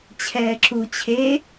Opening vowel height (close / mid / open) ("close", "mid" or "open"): mid